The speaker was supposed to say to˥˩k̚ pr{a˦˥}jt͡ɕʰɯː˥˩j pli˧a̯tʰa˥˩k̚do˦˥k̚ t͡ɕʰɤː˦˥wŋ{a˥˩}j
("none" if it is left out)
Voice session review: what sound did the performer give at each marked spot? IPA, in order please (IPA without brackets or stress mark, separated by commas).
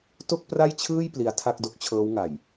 a˥˩, a˨˩